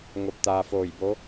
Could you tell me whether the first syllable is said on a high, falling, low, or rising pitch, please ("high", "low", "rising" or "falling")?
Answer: rising